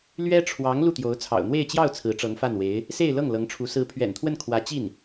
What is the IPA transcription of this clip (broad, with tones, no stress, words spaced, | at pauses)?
lɥɛ˥ʈ͡ʂʰwɑ˧˥ŋ lu˥˩t̪jo˧˥ʊ̯t͡sʰɑ̰˨˩ʊ̯ n̪we˥˧ɪ̯t͡ɕjɑ˥˩ʊ̯ t͡sʰɹ̩˧˥ʈ͡ʂɤ˧˥ŋfa˥˩nwe˧˥ɪ̯ | se˥˧ɪ̯lɤ˥˩ŋ lɤ˧˥ŋʈ͡ʂʰu˧˥ sɹ̩˧˥pʰɥɛ̰˨˩nt̪ʰwə˥˩n kʰwä˧˥t͡ɕi˥˩n